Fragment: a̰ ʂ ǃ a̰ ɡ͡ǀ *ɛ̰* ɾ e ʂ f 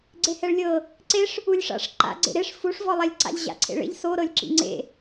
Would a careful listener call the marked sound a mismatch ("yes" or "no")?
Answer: yes